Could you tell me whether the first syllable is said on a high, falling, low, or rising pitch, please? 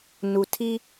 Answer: low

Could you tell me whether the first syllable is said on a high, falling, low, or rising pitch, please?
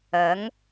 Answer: rising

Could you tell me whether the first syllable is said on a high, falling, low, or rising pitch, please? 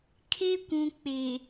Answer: high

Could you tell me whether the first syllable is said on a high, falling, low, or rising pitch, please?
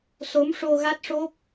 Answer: rising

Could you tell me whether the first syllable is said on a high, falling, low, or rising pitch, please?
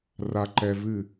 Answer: high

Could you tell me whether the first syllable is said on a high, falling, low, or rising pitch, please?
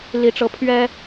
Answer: rising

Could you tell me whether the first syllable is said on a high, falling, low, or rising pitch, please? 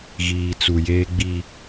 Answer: low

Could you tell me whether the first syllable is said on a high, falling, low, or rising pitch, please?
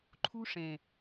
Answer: high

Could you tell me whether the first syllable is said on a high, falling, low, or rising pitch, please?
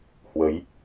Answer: rising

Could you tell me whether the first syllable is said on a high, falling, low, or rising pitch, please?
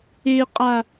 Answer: high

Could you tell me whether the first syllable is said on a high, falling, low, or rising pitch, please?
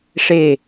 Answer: falling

